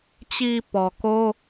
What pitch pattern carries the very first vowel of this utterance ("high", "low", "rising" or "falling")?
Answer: low